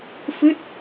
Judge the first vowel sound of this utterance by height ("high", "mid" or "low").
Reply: high